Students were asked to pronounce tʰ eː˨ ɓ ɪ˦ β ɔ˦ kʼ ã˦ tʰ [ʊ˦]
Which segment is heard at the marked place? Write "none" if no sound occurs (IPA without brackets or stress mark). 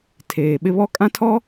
ɔ˦